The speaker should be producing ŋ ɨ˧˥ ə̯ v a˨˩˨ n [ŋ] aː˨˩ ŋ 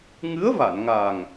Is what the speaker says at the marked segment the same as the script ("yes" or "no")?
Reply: yes